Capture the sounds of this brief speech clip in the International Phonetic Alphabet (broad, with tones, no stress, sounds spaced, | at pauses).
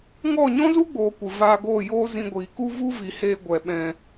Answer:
ŋ ɔ˦˨ ɲ ɔ̃˦ z u˦ ɡ͡b oː˨ kʷ ɨ˨ v aː˧ ɡ oː˦˨ j oː˦ z ĩ˧ ɡʷ iː˨ k u˦ v u˦ v i˨ h eː˧ ɡʷ ɛ˨ ɓ ɛ̃˨